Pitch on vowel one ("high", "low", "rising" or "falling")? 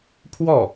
falling